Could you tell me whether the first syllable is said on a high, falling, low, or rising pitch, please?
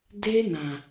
high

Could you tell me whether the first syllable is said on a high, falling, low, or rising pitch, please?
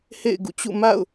falling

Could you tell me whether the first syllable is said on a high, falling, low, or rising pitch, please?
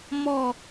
falling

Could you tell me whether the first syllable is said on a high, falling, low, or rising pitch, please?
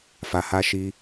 low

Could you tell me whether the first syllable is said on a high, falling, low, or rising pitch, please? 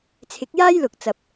rising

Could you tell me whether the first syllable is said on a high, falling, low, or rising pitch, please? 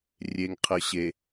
low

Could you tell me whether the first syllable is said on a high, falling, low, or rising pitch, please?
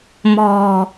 low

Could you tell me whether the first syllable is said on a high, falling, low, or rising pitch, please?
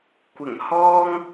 low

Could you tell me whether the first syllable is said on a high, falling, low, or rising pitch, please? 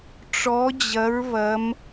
rising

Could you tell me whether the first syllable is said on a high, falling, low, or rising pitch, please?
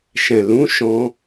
low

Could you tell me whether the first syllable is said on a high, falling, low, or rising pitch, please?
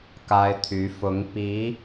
high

